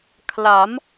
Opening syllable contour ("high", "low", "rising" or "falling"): rising